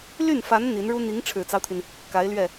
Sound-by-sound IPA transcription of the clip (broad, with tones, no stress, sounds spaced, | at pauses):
l y˥˩ n f a˧˥ n n̪ i˧˥ n ɻ u˥ n̪ i˧˥ ŋ ʈ͡ʂʰ ɻ̩˨˩ t͡s ɑ˦ ʊ̯ t̪ʰ i˩ n | k a˧˥ ɪ̯ l ɥ ɛ˥˩